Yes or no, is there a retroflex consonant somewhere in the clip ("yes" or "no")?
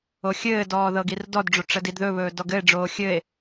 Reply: yes